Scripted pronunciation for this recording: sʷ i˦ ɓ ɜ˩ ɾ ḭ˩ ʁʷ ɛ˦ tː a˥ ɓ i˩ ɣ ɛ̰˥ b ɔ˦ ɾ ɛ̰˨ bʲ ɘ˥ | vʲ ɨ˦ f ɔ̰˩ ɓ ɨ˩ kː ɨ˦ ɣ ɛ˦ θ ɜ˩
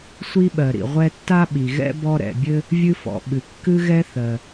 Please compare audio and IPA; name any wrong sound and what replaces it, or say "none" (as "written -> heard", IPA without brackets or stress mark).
none